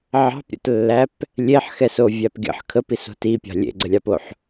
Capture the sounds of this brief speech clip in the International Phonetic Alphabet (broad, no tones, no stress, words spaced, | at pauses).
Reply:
ʕɑ̤pɾʲə̰tlːæp | lʲeħxɛsovʲæp ɡʲə̰ħ kʰəpiso̤ tipʲɑ̤ lʲḛɡ͡ǀəlʲɑpoħ